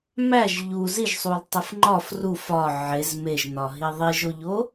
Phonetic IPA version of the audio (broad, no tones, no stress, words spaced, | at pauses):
mæʒ ʎu ziʒsˤul tˤifŋ͡ǃɒf ru fɒ ʕez meʒnɒɦi ðˤiʒoʎo